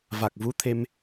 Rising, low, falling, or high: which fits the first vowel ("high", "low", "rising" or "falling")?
low